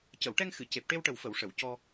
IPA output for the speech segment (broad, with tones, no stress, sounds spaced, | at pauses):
c ə˨˩˨ w ʈ ɛ˧ ŋ x ɨ˨˩˨ c e˨˩ p̚ ʈ e˧ w ʈ ə˨˩ w f ə˨˩˨ w ʂ ə˨˩˨ w c ɔ˧